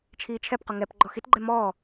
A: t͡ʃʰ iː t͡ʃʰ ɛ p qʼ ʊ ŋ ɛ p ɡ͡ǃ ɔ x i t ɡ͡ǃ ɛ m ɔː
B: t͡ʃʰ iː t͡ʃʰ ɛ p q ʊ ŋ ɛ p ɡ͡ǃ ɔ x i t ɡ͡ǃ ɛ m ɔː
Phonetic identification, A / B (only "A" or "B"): B